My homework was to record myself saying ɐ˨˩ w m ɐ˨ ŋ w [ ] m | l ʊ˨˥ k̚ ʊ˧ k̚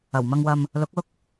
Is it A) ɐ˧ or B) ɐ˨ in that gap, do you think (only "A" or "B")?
B